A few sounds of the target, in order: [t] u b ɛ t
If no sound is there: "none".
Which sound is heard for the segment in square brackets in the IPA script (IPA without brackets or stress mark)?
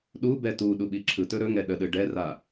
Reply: ɗ